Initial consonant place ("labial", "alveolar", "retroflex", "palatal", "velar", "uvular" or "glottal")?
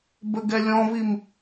labial